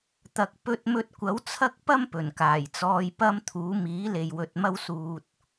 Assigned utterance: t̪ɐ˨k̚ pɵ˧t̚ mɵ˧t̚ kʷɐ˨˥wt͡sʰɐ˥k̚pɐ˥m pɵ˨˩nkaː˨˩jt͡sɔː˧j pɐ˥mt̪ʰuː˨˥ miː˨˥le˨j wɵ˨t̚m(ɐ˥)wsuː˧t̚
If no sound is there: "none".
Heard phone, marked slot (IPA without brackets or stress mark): ɐ˥